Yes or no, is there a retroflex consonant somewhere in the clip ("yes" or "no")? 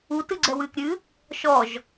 no